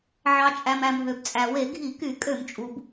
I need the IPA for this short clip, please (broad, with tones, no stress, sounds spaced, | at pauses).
ʕ ɑ˩ t͡ʃʼ æ˩ m æ˩ m ɦ ø˩ b t͡sʼ æ˩ w e˧˩˧ ɡʱ i˧˩˧ k y˧˩˧ kʼ ø˧˩˧ m t͡ʃʼ u˩ b